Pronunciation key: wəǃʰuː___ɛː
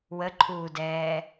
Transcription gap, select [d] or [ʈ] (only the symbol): d